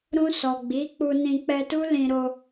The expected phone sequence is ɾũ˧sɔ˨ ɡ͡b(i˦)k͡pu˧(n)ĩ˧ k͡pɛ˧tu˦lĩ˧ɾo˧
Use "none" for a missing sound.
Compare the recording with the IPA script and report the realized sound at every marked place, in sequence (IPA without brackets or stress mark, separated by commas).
i˨˦, n